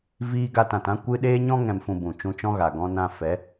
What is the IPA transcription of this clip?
viː˦ ɡa˧tã˨tã˦ kʷɨ˦ ɗeː˦ɲɔ̃˦ŋɛ̃˨mfũ˨ bũ˨t͡ʃũ˧t͡ʃɔ̃˦ɣa˨ ɡɔ̃˧nã˧ fɛ˨˦

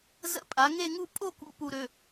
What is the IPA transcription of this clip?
zə̰˧ pʼa˩˧ ŋe˥˧ŋu˥˧ pʼo˥˧kṵ˧ pu˧ɾø˩˧˩

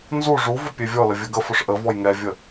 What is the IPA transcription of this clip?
nzu ʐuvʊ pʲevʲɔlə vʲəɡəfʊʂ ʔə vɔjŋɛvʲə

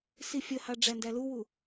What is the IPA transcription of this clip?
sifʲəhɑ ɖ͡ʐændæluwu

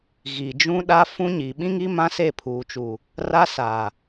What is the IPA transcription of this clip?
ɣi˨d͡ʒũ˦ɗa˦ fũ˦ ɲi˨ ɓĩ˦ŋi˦ mã˦se˦˨pʰuː˨t͡ʃuː˨ | ra˦saː˨

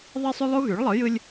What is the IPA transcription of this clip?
ðˤi˦sˤy˦lˠu˦ ɣy˩˥ɭlˠɯ˩˥jɯ˦lʲ

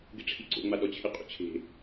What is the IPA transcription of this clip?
ɡɪʈ͡ʂʰiǀo̰ŋ͡ma ɗɔt͡ɕʰɪqʼṵt͡ɕʰe̤

